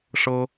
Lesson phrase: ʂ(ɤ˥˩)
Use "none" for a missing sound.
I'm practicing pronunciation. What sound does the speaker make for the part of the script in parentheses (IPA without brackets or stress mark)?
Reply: ɤ˥